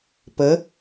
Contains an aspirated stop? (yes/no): no